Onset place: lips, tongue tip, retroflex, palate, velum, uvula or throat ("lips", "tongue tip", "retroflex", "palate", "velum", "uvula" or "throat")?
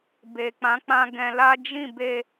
lips